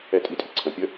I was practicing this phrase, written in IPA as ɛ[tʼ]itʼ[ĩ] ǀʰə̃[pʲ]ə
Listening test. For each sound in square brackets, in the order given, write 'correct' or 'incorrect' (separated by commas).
correct, incorrect, correct